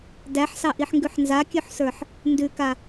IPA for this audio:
d æ ħ s ɑ ʔ i ħ ŋ ɡ ʉ ħ n z a kʲ ʉ ħ s ə˞ ħ | n d ʉ k a

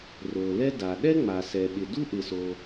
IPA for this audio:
r o˩ l ɛ˥ d a˩ ɗ ɛ˥ ŋ͡m a˩ s ɛ˩ ɓ ɪ˩ d u˥ ʔ ɪ˩ s o˩

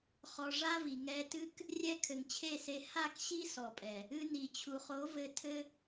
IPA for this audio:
χ ɔ˧ ʐ a˦ v i˨ ŋ ɛ˧ t ɨ˦ k | rʲ ɛ˦ kʰ ɘ˨ ŋ t͡ɕʰ e˦˨ s e˧ h a˦˨ k ɕ i˦ s ɔ˨ pʼ ɛ˨ | ɨ˧ n i˨ t͡ɕʰ u˨ χ o˨˦ v ɘ˧ tʰ ɘ˦

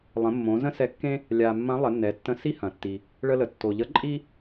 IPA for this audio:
lˠ ə̃˩˧ mː õ˩˧ z ə̃˥ s ɛ˧˥ kː ẽ˥ | lʲ a˩ mː ɐ̃˧˥ lˠ ə˩˧ nː ɛ˩˧ tː ə̃˧ s i˥ h ɐ̃˩ tː i˩ | ɭ ə˧ l ə˩ tː o˩ ʎ ə˧˥ ǃʼ i˥

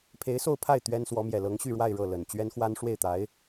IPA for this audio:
pʰ e˧˥ ɪ̯ s o˥˧ ʊ̯ pʰ a˥˩ ɪ̯ t̪ ɥ ɛ˥ n s w ɔ˧˥ m j ɛ˨˩ l ɤ˧˥ ŋ ɕ y˥˧ ɻ w a˥˧ ɪ̯ ɻ ɤ˥˩ l ə˨˩ n t͡ɕ ɥ ɛ˥ n x w a˥ n ʂ w e˥˩ ɪ̯ t̪ a˧˥ ɪ̯

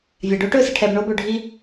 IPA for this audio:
vʲ a˨ ɖ oː˦ ʈ ɵː˦˨ s ɪ˧ ʈʰ ɛː˧ b ɳ oː˧ b ɵː˨ ɖʱ i˦

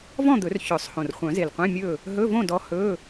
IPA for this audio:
v ɔ̃˥˨ d̪ ɵ˨˩˦ r ç œ˨˩˦ sˤ h õ˨˩ r χʷ œ̃˨˩˦ z e˨˩ l qʷ ẽ˧˥˧ mʲ ɵ˥˨ | ɦ ɵ˧˥˧ v õ˥˨ d ɔ˨˦ h ɵ˧˥˧

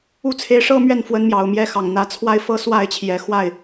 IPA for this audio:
u˥˩ t͡sʰ e˧˥ ɪ̯ ʂ ɤ˥ m ɥ ɛ˥˩ n f w ə˧˥ n m j ɑ˨˩ ʊ̯ m j ɛ˥ x ɑ˨˩ ŋ n̪ ä˧˥ t͡sʰ w a˥˩ ɪ̯ f ɤ˥ s w a˥˩ ɪ̯ t͡ɕʰ j ɛ˨˩ x w a˥˩ ɪ̯

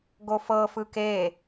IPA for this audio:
ɡ o f ɤ f ɯ k e

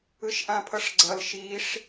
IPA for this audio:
ɯ ʃ ʔ ã pʰ ʌ ʂ ɡ͡ǀ ʌ l ʃ i ʂ

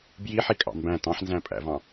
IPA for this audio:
b j i ħ i kʼ ɑ̰ m b æ̃ t ɑ̃ ħ n z æ̃ pʼ æ̰ v ɑ̃

